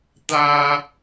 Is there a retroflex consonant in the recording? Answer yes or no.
no